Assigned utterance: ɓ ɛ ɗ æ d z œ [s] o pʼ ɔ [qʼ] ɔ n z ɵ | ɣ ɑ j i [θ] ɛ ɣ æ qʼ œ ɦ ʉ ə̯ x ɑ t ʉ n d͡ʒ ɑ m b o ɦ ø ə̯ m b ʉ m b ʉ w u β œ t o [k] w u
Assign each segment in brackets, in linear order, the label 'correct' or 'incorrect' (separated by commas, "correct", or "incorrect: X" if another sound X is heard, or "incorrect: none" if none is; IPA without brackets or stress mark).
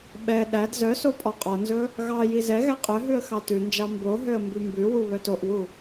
correct, correct, incorrect: z, incorrect: ʔ